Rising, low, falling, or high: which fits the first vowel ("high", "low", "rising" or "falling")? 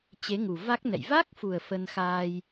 rising